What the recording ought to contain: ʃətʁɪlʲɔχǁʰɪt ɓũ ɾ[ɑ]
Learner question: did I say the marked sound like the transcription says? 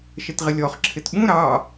yes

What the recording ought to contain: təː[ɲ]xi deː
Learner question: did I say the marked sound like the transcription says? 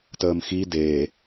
no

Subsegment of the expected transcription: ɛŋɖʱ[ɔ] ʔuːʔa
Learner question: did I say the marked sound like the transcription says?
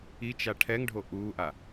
no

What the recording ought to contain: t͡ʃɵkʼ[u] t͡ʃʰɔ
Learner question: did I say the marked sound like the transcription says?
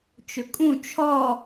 no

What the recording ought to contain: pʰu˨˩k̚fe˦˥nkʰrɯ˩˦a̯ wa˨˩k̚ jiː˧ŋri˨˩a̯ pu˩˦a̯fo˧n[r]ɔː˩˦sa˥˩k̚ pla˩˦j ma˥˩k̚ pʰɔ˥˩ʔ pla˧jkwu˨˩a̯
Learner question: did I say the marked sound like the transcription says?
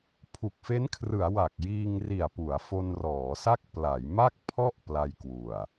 yes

